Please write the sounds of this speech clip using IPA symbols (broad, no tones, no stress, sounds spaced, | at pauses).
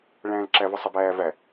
ɭ æ̃ː l ǁ æ v ə sˤ ə b æː v æ